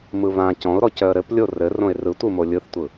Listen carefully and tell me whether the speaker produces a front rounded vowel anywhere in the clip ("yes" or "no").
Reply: yes